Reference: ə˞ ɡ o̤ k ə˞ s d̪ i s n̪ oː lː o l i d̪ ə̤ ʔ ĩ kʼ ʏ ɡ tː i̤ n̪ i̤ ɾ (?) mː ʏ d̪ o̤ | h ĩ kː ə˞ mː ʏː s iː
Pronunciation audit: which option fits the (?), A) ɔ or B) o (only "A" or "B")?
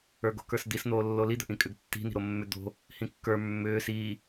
B